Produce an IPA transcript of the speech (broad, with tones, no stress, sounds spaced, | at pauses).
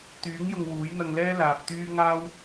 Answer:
t̪ yː˨˥ ŋ j ʊ˧ ŋ w uː˨˥ j n̪ ɐ˧ ŋ l ɛː˥ l aː˨ p̚ t̪ yː˥ ŋ aː˥ w